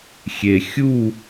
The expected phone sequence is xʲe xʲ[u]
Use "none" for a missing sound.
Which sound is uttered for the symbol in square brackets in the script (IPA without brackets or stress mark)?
u